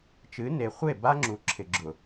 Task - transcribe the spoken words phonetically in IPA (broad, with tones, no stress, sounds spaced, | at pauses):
t͡ʃ ɨ˨˦ n e˨ χʷ e˦˨ b a˦ ŋ͡ǁ u˨ ǁʰ ɪ˨ ɡ͡ǁ ʊ˨